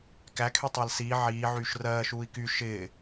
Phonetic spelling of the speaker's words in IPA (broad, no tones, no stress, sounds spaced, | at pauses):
k æ kʰ y tˤ a l s iː ʕ iː ʕ yː ʃ r ɜː ʃ uː i̯ k y ʃ ɪː